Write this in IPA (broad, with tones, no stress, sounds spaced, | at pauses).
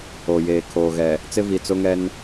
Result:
o˨ j eː˨ kʰ oː˨ ɣ ɛ˨ | t͡s ɪ˦ v i˨ t͡s ʊ˦ ŋ ɛ˦ n